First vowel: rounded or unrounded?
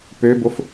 rounded